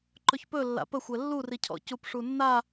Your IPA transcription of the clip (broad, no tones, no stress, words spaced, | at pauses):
ǃɵçpɵ lːa̰pəxʷɛ lːuricʰɔ̰ cupʂunːa